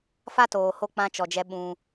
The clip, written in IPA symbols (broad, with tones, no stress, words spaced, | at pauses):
fa˦toː˨ ho˧k͡pã˧ t͡ʃɔ˨d͡ʒɛ˧ ɓũ˧